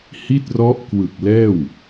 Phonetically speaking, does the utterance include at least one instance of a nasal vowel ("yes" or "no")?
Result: no